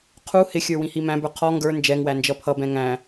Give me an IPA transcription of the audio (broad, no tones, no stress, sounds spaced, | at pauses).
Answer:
qʰ u h ɪ xʲ ə˞ w ĩ h i m æ̃ b ə˞ qʰ ɔ ŋ ɡ ə˞ n d͡ʒ ɛ ŋ w æ n d͡ʒ ʌ pʰ ʌ b ɛ̃ ŋ æ̃